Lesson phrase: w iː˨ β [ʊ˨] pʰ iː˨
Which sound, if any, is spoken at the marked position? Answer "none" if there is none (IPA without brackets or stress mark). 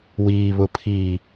ʊ˨